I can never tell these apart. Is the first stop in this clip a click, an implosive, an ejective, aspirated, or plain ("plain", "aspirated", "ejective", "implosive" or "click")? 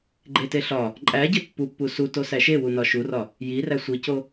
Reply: click